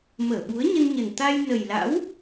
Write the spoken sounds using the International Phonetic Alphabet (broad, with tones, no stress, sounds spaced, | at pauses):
m əː˧˩ ɓ u˨˦ ə̯ ɲ ə˧ n ɲ ə˨˩ n t̪ a˧ j n ə˨˩ j l a̰˧˥ w